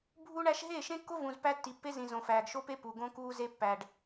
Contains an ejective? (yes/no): no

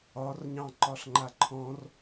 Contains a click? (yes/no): yes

